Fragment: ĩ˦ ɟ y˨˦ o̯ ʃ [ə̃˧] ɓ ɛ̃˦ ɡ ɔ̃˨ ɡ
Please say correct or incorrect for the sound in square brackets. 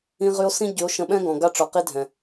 correct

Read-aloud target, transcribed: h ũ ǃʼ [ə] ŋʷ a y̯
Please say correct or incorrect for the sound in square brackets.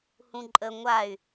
correct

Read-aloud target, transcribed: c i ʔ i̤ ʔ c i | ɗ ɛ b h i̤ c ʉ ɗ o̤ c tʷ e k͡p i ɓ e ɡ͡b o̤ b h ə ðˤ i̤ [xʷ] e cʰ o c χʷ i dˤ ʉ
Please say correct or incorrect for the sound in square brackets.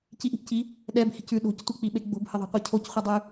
incorrect: qʷ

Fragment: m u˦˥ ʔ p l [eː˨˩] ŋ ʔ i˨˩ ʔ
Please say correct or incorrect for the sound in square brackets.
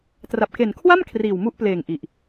correct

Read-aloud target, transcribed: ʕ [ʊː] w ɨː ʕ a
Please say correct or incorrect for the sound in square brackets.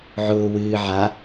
correct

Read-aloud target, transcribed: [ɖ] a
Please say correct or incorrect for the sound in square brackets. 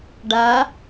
correct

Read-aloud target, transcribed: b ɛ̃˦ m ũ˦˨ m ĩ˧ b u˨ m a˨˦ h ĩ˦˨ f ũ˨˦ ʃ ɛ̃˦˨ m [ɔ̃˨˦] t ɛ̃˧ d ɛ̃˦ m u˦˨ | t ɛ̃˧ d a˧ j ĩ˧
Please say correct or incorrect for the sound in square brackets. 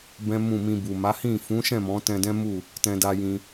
correct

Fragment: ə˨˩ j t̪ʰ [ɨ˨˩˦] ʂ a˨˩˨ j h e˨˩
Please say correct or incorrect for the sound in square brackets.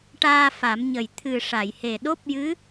incorrect: ɨ˨˩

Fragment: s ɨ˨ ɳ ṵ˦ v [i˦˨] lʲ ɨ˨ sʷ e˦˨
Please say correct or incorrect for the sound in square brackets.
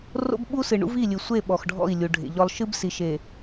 correct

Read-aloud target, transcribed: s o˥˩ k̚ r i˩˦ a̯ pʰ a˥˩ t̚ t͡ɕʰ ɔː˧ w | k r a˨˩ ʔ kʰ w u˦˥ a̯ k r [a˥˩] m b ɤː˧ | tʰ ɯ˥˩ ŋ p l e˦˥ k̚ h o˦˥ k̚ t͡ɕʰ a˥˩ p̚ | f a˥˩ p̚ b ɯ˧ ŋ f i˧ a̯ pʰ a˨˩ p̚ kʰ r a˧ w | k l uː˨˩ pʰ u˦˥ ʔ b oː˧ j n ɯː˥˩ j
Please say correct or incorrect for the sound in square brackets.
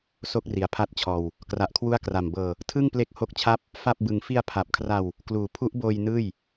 incorrect: a˨˩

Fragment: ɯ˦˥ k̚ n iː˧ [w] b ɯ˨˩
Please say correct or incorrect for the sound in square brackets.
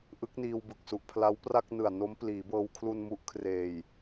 correct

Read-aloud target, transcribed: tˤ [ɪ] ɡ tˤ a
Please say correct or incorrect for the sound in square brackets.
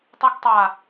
incorrect: i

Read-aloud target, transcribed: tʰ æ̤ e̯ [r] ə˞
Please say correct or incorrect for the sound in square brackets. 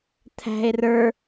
correct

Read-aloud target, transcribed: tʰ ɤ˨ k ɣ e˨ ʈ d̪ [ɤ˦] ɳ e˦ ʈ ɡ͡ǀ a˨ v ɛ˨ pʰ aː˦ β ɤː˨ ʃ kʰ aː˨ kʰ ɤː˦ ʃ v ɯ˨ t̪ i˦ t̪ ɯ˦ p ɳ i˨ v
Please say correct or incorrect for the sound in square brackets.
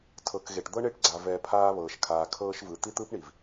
correct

